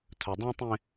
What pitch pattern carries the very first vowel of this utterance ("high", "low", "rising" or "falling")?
low